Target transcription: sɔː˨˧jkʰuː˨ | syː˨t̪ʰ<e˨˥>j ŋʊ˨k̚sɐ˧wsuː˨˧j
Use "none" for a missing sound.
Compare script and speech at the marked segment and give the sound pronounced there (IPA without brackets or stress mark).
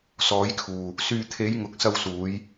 e˨˧